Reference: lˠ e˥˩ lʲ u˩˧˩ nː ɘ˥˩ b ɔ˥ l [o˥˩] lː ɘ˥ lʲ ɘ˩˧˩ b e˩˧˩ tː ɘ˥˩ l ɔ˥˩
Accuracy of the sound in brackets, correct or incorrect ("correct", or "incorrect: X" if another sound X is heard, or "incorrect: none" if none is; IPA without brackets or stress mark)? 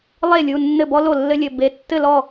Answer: correct